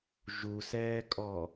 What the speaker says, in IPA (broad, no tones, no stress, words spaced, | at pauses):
ʒusɛːkʼɔ